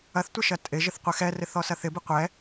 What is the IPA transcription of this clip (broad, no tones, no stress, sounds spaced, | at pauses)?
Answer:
ɐ θ tʷ ɪ ʃ ɐ tʼ ɪ ʒ ɪ θ qʷ ɛ x ɛ r ɪ θ ɔ s ɐ θ ɪ b ɪ qʷ ɛ